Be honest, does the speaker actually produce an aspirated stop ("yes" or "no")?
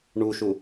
no